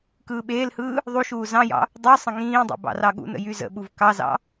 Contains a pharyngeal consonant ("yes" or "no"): no